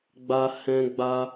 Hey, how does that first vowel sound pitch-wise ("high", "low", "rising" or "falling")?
high